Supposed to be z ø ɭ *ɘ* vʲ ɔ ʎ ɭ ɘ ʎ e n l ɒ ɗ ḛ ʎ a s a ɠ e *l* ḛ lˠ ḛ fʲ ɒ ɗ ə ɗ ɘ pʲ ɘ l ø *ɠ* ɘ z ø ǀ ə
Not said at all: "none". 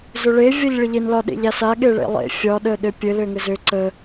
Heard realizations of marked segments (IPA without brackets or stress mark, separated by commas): e, ɭ, ŋ